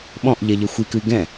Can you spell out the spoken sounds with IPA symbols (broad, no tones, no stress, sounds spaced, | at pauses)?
ɓ ɔ̃ ʔ ʎ ɛ ʎ ə xʷ i k ɨ i̯ ɡ ɛ̃